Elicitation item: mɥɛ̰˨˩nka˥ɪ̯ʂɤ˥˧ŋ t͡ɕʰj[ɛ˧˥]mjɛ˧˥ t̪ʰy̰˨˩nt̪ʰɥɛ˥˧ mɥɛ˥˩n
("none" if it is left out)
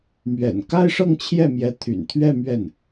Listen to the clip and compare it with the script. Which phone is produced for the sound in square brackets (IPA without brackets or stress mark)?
ɛ˥˩